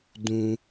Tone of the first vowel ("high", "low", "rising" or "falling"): high